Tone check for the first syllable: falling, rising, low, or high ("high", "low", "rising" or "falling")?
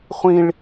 high